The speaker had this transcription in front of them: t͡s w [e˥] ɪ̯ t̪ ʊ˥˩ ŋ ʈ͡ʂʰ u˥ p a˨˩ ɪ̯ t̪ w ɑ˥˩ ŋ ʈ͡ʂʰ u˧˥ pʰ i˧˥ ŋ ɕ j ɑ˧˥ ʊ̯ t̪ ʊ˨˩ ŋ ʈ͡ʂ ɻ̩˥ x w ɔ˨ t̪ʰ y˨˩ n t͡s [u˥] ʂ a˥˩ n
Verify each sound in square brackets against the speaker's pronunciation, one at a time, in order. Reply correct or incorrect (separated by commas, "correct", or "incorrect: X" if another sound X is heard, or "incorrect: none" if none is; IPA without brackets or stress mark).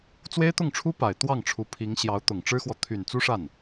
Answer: correct, correct